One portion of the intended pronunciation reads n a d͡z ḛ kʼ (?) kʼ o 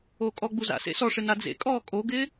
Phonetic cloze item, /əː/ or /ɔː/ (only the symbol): ɔː